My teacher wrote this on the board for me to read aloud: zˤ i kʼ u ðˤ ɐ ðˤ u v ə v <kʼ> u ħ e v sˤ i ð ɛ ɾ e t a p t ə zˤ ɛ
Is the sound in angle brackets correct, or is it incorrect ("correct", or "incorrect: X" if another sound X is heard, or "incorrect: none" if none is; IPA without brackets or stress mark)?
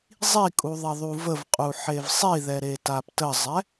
incorrect: qʼ